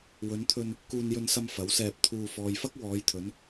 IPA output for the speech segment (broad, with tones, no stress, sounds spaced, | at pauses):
w ɵ˨˧ n t̪ʰ ɵ˧ n | k uː˧ n j ɵ˧ n s ɐ˧ m f ɐ˨˥ w s ɛː˧ p̚ t̪ʰ uː˧ f ɔː˨ j f ɐ˥ k̚ w ɔː˨˧ j t̪ʰ ɵ˨˧ n